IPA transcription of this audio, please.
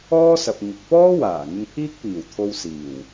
ɔː˥sɐ˨p̚ ŋɪ˧k̚ pɔː˥waː˨˩ ŋɪ˧ŋpʰiː˥k̚piː˨˩wt̪ʰo˧w siː˨˩w

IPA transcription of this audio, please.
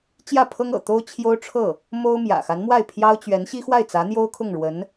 t͡ɕjä˥˩pʰɤ˥ŋɤ̰˨˩ t̪o˥ʊ̯t͡ɕʰjo˥ʊ̯ʈ͡ʂʰɤ˥˩ | mo˥ʊ̯mjä̰˨˩ xa˧˥nmwa˥˩ɪ̯ pʰjɑ˥ʊ̯t͡ɕɥɛ˧˥n ɕi˥xwa˥˩ɪ̯t͡sä˧˥n̪jo˥ʊ̯ kʰʊ˥˩ŋɻwə˧˥n

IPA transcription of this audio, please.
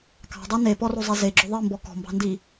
kɑ̤dˤɑ nepɔrozˤe zeɡ͡ǁʊ ðˤimbɔ kɔ̤mbɑ̤ndi

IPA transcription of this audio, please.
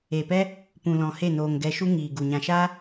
e˨pɛ˦ | pũ˨lɔ̃˨ he˦˨noː˨ŋɡɛ˧ ʃu˦ŋiː˨ɡu˨ ɲã˨ʃaː˦

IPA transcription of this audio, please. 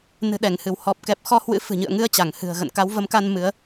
nɨ̤˨˩ɗɛ˧˩ŋhɨ˧˩w hɔ˨˩p̚kɛ˨˩p̚xɔ˧ hwɨ̰˧˥fɨ̤˨˩ɲɨ̰˧˨ə̯ŋɨ˧ə̯ t͡ɕa˧˩ŋhɨ̤˨˩ə̯ɣə̰˧˨n ka˨˦wvə˨˦mka˧n mɨ˨˦ə̯

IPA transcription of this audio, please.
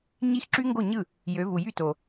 ɲi˦˥xǁy˦˥ŋɡo˥˩ ɲɯ˥˩ | jø˨˦vu˨jy˥˩ to˨

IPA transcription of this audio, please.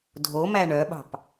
dʱomæ ɳœɓɑ̤p

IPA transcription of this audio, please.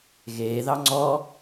ɣeːðɑ ŋ͡ǀɔ

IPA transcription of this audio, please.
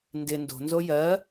ndɪ ndo̤nzo jɜ

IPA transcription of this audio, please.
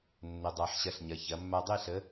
nːə˩˧dˤa˩˧ħ ɕɐ˧ɬɲɐ˩˧ çɐ˩˧mːa˧dˤe˥˧ɬə˨˥

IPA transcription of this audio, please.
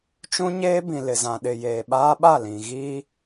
t͡ʃũ˦ɲeː˦bĩ˨ lɪ˨ zã˨ɗɪ˨ jeː˨ɓaː˦ɓa˦˨lĩ˨ ɣi˦

